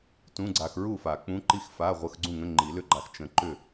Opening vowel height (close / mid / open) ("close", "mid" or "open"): close